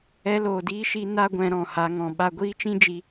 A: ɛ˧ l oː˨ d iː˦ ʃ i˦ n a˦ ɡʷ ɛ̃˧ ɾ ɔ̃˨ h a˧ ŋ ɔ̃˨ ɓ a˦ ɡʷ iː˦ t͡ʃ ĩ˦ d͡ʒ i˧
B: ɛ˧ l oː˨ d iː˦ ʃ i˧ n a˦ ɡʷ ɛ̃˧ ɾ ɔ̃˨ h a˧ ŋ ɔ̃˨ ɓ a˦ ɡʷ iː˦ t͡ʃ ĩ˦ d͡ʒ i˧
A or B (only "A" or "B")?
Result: B